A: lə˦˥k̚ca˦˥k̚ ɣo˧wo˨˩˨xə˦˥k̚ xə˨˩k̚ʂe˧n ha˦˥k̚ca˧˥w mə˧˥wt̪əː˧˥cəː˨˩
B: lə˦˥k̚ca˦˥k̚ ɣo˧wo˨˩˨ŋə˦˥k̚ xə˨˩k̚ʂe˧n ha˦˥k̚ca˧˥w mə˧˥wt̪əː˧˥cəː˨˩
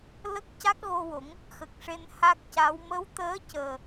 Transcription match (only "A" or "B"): B